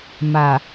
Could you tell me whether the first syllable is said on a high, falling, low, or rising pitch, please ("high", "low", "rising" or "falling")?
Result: low